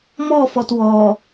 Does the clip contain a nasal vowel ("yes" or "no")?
no